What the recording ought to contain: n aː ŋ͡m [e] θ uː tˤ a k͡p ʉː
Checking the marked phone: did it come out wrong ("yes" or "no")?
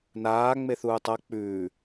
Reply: no